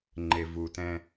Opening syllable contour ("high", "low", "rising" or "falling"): low